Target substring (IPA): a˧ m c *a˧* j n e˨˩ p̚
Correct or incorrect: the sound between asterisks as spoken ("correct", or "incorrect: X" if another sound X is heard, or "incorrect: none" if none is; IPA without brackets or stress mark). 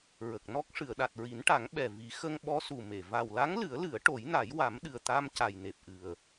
incorrect: a˨˩